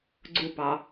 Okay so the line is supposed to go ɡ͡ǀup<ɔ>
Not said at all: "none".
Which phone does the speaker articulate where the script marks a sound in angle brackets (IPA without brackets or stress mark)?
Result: ɑ